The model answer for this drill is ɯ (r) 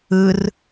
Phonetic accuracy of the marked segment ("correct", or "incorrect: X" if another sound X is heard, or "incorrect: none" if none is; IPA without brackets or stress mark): correct